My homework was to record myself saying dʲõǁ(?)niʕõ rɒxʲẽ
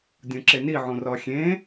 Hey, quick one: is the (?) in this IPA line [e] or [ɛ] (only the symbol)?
e